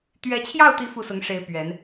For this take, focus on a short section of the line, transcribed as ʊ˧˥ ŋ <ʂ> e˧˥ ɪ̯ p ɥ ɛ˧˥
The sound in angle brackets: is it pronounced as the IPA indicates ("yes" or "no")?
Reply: yes